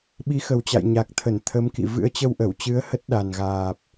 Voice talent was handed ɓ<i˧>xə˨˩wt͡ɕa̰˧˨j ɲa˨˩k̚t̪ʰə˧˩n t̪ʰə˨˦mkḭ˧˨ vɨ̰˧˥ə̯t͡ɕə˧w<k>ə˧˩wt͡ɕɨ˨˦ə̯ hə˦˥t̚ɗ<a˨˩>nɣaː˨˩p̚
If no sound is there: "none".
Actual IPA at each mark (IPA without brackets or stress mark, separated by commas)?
i˨˦, ʔ, a˨˩